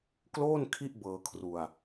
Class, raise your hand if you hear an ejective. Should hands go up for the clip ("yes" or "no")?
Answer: no